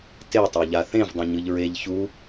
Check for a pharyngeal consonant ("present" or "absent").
absent